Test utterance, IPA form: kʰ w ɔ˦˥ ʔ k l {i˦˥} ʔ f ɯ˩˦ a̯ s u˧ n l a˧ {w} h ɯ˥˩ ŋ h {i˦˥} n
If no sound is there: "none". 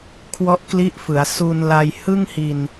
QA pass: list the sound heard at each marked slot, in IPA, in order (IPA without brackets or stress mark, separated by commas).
i˦˥, j, i˧